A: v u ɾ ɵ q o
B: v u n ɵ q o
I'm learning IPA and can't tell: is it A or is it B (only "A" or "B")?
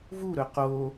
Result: A